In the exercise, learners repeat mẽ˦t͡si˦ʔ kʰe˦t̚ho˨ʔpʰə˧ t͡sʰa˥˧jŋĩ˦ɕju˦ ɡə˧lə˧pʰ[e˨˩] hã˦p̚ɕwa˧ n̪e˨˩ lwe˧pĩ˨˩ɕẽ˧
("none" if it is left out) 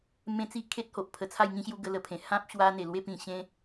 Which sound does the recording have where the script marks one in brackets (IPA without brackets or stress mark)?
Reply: ẽ˨˩